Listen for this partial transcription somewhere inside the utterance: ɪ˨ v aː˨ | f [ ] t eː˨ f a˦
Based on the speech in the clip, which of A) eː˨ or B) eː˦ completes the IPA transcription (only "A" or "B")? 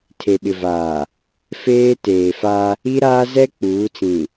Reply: B